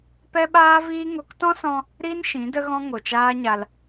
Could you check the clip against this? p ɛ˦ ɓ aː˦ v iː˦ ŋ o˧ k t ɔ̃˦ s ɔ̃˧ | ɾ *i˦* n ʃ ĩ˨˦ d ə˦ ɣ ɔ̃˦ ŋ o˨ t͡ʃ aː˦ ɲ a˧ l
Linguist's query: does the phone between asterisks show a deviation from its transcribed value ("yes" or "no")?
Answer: no